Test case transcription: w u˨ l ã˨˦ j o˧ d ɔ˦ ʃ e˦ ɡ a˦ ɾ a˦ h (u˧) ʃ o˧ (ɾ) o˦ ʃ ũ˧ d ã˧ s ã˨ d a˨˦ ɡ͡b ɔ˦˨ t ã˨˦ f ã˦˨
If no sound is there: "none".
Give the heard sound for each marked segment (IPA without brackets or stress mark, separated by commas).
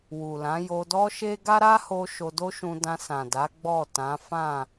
o˧, d